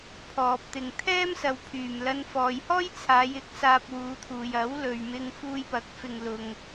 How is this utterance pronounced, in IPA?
pʰ ɔː˨ p̚ t̪ ɪ˨ ŋ t̪ʰ ɛː˥ m s ɐ˨˧ w pʰ yː˨˩ m l ɐ˧ n f ɔː˨ j h ɔː˥ j t͡sʰ aː˨˧ j ɪ˨˥ k̚ s aː˧ p̚ w uː˨˧ t̪ʰ uː˨ j ɐ˨˥ w l ɵ˨ ɥ m ɪ˧ ŋ f uː˧ j p ɐ˨˥ k̚ f ɪ˧ ŋ l ʊ˧ ŋ

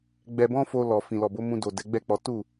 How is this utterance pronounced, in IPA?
ɡ͡b ɛ˧ b ɔ̃˦ f o˧ l ɔ˨ f ĩ˨ l ɔ˨ b o˨˦ m ũ˧ d o˨ d ɛ˨˦ ɡ͡b ɛ˦˨ k͡p ɔ˨˦ t u˦˨

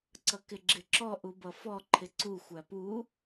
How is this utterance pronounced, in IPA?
ǀ ʌ k ɪ ɡ͡ǁ ɪ ǁ ɔ ʔ u b ʌ f ɔ ǃʰ ɪ ǀ u xʷ æ p u

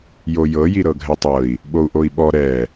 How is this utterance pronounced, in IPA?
j o j ɤ j i ɾ ɤ ɡʱ ɛ tˤ ɤ i̯ | ɓ o u̯ ʔ o i̯ ɓ ɔ ɾ ɛ

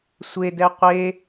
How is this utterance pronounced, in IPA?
sʷ e d ɛ qʷ e

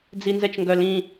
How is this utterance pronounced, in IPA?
d͡z i n z ɛ t͡ʃ ŋ ɡ œ l ĩ

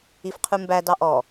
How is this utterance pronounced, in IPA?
i f qʰ ʉ m b æ d ɑ ʔ ɔ

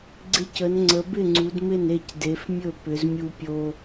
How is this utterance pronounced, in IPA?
ɡ͡ǀ ɪ˦ c ə˨˦ n ŋ͡ǀ ə˨˦ b ɪ˥˨ ŋ͡ǀ u˨˦ d m ɪ˥˨ n e˥˨ c d e˨˦ f mʲ ɵ˥˨ p ʏ˨˦ z mʲ u˦ pʲ o˦

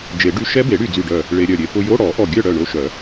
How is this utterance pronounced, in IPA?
d͡ʒ e˨˩˦ ɖ y˧˥˧ ʃ ɛ˦˥ b e˨˩˦ ɽ y˧˩ d͡z y˧˩ ɖ œ˧˩ | ɭ e˧ ɾʲ œ˧˩ ɾʲ e˧ p ʊ˧ j o˧˥˧ ɽ ɔ˨˩˦ ʔ ɔ˧˩ ɡʲ œ˥˨ ɽ œ˧˩ ɳ o˧ ʃ œ˨˩˦

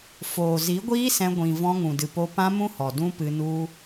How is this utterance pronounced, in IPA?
f oː˨ z i˨˦ ɡʷ iː˦ s ɛ̃˧ ɡʷ ĩ˨ v ɔ̃˧ ŋ ũ˨ d ɨ˨ p o˧ p ã˦ m ũ˦ h ɔ˨ d ũ˦ p ɨ˧ n u˦

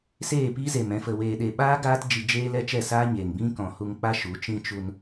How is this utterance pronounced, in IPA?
s eː˦˨ p i˦ z e˨ m ɛ̃˧ f ə˨ w eː˨ ɗ e˨ ɓ aː˦ ɡ aː˦ t d͡ʒ i˧ d͡ʒ eː˦ l ɛ˦ t͡ʃ ɛ˦˨ s aː˦ ɲ eː˨ ŋ b ĩ˦ k ɔ̃˨ h u˧ ŋ k͡p a˦ ʃ u˨˦ t͡ʃ ĩ˦ t͡ʃ u˧ n

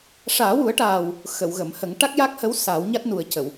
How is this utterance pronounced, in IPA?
ʂ aː˨˩˦ w u˨˩˦ ə̯ ʈ aː˨˩ w | x ə˨˩˨ w ɣ ə˨˩˨ m h ə˨˩˦ ŋ ʈ a˦˥ k̚ j a˦˥ k̚ h ə˧˥ w s aː˨˩˦ w ɲ a˦˥ t̚ n u˨˩ ə̯ c ə˨˩˨ w

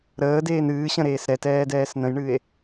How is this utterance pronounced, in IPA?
ɾ əː d eː n ɨː ɕ ə̃ ɾ eː s ɾ ɛ t ɛː d ɛː s n ə̃ j ɳ ɨ e̯

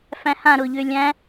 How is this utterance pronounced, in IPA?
f æ̃ h ã ɾ ʊː ʎ ʏː lʲ æ̃

